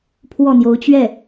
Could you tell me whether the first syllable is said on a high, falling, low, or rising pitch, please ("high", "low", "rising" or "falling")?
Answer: falling